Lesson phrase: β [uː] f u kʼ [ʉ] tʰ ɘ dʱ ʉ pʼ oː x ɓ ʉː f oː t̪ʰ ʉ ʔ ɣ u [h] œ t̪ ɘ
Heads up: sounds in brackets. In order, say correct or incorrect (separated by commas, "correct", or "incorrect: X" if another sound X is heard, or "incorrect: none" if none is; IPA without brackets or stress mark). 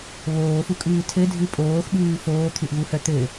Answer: incorrect: oː, incorrect: ʉː, correct